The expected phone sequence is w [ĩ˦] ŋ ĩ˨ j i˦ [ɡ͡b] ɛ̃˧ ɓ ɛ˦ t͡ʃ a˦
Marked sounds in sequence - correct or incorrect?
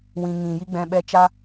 incorrect, correct

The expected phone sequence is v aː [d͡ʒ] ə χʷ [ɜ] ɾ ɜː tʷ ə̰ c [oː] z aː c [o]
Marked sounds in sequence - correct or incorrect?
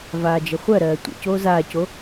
correct, correct, correct, correct

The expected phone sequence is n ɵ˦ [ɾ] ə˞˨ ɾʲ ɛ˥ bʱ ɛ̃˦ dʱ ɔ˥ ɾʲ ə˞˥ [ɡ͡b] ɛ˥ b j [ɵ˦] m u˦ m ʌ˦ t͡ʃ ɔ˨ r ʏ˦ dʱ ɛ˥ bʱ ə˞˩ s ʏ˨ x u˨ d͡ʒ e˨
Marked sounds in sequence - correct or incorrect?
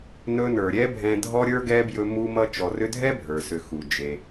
incorrect, incorrect, correct

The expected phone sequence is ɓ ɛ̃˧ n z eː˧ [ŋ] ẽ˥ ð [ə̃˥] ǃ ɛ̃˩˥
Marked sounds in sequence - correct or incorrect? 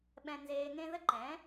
correct, incorrect

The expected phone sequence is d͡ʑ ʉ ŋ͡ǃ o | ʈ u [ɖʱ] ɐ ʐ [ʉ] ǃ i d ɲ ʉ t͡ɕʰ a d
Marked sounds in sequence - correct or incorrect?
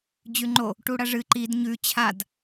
incorrect, incorrect

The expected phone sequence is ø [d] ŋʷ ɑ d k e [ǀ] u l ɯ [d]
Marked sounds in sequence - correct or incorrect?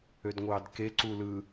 correct, correct, incorrect

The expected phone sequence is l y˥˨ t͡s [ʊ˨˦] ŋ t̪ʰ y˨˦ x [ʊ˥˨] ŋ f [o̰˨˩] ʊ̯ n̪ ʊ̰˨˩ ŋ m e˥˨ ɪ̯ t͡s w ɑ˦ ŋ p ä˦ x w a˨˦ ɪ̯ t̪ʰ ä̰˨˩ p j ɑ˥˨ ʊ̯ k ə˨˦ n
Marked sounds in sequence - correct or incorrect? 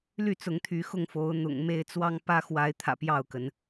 correct, correct, incorrect

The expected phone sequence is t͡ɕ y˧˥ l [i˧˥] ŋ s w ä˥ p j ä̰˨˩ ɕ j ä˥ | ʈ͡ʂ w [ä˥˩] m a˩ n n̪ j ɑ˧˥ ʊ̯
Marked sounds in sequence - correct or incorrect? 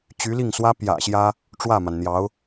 incorrect, correct

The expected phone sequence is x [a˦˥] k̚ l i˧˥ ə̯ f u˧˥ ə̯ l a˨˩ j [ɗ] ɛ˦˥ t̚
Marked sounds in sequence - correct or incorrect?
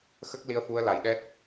incorrect, correct

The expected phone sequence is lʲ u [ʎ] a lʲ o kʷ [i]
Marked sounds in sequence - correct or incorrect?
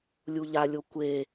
correct, incorrect

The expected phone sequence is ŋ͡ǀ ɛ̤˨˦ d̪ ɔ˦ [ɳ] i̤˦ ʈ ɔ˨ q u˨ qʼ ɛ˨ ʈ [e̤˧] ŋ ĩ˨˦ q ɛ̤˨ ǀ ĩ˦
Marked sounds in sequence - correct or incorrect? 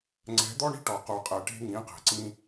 correct, correct

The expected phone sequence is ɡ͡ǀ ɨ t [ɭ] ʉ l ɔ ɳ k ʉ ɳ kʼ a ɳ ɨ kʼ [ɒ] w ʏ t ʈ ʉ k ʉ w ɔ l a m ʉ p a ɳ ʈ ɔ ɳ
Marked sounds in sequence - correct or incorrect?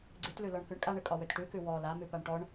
incorrect, correct

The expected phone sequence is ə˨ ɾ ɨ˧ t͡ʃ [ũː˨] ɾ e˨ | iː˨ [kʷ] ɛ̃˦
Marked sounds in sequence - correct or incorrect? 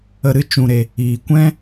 incorrect, correct

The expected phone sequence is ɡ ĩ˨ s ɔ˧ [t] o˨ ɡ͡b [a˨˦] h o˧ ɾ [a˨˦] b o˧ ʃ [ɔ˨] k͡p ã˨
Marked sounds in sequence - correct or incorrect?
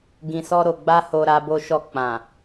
incorrect, incorrect, incorrect, incorrect

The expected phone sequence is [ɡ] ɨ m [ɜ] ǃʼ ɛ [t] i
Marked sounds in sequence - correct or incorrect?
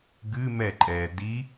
correct, incorrect, incorrect

